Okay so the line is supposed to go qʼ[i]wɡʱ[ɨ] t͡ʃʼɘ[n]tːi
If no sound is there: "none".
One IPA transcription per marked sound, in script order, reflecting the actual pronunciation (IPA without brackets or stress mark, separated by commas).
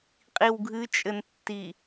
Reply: i, ɨ, n